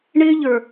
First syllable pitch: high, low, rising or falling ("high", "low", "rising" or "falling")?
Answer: high